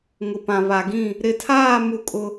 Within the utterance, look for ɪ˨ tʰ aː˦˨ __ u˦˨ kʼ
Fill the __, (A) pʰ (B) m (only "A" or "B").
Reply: B